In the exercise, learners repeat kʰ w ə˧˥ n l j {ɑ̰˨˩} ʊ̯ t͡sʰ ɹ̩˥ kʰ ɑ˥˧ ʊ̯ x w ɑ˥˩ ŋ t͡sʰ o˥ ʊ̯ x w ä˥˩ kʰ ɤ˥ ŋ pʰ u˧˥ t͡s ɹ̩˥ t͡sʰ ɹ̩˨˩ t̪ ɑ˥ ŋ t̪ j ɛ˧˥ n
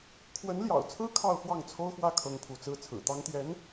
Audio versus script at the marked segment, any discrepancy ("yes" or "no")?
no